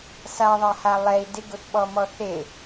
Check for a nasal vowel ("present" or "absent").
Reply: absent